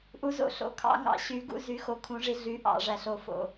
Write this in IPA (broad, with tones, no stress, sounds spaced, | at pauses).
ʔ u˨˦ z o̰˨ ɬ o̰˨ kʰ ɑ̰˨˦ ŋ ɑ̰˨ ɕ y˨˦ ɡ ṵ˨˦ z y˨˦ x o˨˦ kʰ ũ˨˦ ʐ i˨˦ ɮ y˨˦ ʔ ɑ̰˨ ʐ æ˨ ɬ o˨ f o̰˨